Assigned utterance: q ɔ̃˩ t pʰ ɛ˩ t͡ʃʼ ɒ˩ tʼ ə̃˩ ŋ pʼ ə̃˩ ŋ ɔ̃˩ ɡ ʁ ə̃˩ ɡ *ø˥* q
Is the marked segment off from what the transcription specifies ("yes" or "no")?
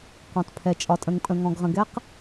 yes